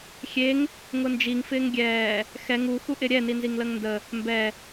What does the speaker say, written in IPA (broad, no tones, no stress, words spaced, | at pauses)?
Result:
xʲeŋ | ŋʊnd͡ʒiŋ fɪːŋɡʲɛː | xɛ ŋu xuʔɪɾʲɛ ninziŋləŋndə | mbɛ